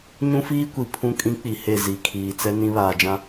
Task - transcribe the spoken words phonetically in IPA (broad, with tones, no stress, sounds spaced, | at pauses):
ɲ ũ˦ f iː˦ kʷ i˨ pʰ ũ˦ kʼ ĩ˦ k͡p i˨ h e˦˨ z i˨ kʰ iː˨ t͡s ɛ˦ n ĩ˦ β aː˨ d͡ʒ ã˦